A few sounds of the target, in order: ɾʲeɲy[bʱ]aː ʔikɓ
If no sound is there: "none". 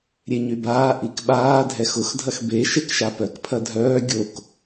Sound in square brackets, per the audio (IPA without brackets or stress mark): b